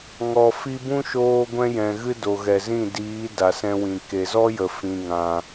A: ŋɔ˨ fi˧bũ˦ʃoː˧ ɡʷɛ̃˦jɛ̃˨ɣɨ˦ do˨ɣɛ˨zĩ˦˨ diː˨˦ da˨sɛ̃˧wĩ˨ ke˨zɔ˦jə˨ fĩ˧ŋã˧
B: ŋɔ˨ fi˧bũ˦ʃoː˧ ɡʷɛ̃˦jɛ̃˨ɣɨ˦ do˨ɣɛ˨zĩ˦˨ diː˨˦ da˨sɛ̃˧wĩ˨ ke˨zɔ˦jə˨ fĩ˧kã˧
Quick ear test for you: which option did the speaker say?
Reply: A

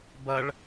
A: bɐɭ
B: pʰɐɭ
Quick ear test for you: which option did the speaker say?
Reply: A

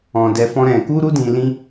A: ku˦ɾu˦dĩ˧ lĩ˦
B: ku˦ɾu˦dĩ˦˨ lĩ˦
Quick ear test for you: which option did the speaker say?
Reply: A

